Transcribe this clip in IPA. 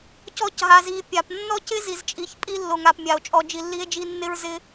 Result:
c ɔ˧ c ɦ a˨ z i˨ pʲ a˨ p nː ɔ˦ c ɪ˦ z i˨ z t͡ʃʼ i˨ ç pʼ i˧ lː o˨ ŋ a˨ p mʲ a˨ o̯ t͡ʃʼ ɔ˧ d͡ʒ i˧ lː i˦ e̯ d͡ʒ i˦ nː ɪ˦ ɹ z ɪ˦

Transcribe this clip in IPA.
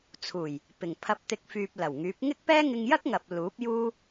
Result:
t͡sʰ uː˨˩ j | p ɪ˨˩ ŋ pʰ ɐ˨˥ p̚ t̪ ɪ˨˥ k̚ f yː˨ p̚ l ɐ˨˩ w ŋ yː˨˥ p̚ ŋ ɪ˥ k̚ p ɛː˥ ŋ ɪ˧ ŋ j ɐ˥ k̚ ŋ ɐ˨ p̚ l uː˨˥ p̚ j uː˥

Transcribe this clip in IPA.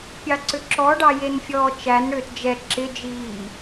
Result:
pʲ ɑ ǀ ʏ ǁ ɔ ɖ ɑ j e n fʲ ɔː t͡ʃ æ n ɽ ʏː t d͡ʒ ɛ ǁ ɪ d͡ʒ iː

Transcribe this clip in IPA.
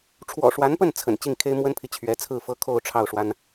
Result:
ʈ͡ʂʰ w ɔ̰˨˩ ʂ w a˧˥ n p ə˥˩ n t͡sʰ ə̰˨˩ n t͡ɕ i˥˩ ŋ kʰ e˥ ɪ̯ m w ə˥ n pʰ i˨ t͡ɕʰ ɥ ɛ˧˥ t͡sʰ ɹ̩˥˩ f ɤ˥ kʰ o˥˧ ʊ̯ ʈ͡ʂʰ ɑ˥˩ ʊ̯ ʂ w a˥ n

